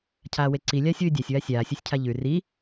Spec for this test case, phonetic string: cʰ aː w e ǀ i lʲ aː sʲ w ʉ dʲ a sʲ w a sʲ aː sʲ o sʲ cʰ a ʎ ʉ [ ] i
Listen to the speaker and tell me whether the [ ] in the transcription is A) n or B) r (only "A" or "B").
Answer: B